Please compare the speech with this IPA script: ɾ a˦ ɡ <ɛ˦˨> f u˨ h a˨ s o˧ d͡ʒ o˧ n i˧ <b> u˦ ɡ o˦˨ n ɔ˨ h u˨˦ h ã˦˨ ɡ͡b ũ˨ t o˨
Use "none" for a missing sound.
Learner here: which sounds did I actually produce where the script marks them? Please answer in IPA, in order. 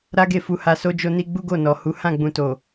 e˦˨, ɡ͡b

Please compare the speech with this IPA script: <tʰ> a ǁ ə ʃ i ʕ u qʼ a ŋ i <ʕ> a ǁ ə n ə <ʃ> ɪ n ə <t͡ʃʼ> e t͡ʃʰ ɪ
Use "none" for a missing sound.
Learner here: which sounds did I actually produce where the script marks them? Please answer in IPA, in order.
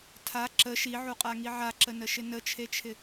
tʰ, ʕ, ʃ, t͡ʃʰ

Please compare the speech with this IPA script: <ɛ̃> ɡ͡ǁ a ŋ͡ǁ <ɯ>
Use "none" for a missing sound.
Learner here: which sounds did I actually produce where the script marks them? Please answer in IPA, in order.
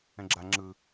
ɛ̃, ɯ

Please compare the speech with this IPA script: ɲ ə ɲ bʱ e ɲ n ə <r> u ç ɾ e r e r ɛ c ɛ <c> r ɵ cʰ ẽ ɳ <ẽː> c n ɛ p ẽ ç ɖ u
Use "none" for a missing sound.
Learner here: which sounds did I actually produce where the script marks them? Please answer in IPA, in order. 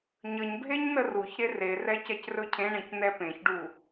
r, c, ẽ

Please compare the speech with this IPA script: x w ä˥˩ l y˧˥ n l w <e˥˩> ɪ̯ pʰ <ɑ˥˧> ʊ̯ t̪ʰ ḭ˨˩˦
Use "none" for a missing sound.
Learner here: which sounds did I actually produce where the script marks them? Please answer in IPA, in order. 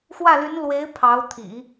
e˧˥, ɑ˧˥

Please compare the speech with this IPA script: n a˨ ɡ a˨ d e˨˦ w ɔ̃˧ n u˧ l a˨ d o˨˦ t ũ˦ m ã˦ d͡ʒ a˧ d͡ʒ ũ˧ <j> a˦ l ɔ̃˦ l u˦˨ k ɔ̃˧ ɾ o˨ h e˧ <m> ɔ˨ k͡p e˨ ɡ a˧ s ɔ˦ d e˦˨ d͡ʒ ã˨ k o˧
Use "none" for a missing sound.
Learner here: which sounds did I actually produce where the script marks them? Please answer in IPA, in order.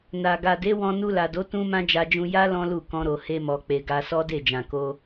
j, m

